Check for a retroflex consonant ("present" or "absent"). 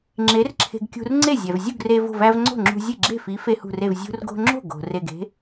absent